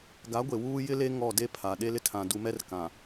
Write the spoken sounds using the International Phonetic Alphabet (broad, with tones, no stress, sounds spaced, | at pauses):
ɡ a˨˦ ɡʷ e˨ w uː˦ j ɪ˦ l e˦ ŋ ɔ˦˨ d e˦ pʰ a˨ ɗ e˦ l ɪ˦ tʰ ã˨ d u˨ m ɛ˦ r k ã˨